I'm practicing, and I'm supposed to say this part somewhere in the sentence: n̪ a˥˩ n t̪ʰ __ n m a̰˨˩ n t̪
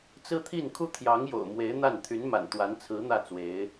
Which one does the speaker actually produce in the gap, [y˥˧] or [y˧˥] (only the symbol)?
y˧˥